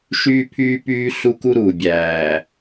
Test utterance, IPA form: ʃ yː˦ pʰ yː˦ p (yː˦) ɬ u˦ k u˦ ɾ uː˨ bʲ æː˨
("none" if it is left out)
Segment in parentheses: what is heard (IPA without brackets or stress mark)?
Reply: yː˦